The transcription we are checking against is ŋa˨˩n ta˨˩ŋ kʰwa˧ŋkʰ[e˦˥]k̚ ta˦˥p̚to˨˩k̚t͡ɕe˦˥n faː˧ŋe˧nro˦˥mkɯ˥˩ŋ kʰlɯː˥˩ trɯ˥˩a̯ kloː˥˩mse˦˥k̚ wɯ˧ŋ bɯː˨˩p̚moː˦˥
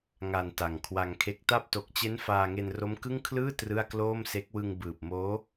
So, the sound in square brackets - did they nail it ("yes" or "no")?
yes